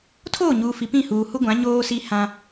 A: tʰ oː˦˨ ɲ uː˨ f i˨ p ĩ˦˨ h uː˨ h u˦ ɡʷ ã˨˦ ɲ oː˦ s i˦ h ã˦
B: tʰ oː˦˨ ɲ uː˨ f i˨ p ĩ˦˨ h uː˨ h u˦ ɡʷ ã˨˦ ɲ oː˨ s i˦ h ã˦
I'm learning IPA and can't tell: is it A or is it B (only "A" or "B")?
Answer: A